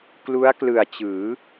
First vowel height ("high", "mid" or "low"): high